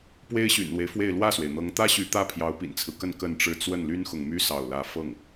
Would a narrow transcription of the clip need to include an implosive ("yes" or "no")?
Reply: no